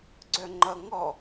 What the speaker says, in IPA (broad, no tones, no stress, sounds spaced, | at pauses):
ɡ͡ǀ œ ŋ͡ǃ ʌ ŋ ɔ